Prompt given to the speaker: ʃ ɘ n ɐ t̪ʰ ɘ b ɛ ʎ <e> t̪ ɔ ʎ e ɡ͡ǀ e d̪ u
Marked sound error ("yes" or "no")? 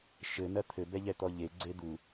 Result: yes